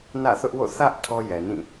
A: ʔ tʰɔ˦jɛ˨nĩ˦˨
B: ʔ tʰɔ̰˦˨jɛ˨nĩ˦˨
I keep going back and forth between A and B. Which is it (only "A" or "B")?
A